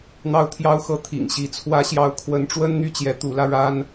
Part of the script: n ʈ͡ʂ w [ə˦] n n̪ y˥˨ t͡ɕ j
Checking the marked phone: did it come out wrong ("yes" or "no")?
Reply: no